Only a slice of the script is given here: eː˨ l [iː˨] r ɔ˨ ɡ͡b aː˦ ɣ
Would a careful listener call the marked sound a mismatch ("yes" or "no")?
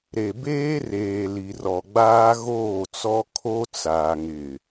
yes